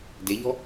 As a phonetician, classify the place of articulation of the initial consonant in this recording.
alveolar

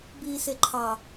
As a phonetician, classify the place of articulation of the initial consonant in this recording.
labial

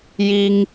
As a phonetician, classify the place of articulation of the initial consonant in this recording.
palatal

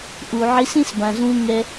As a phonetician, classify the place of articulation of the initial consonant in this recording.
glottal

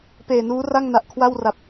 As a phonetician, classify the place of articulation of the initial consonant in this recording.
labial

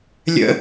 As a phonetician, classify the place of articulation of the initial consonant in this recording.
alveolar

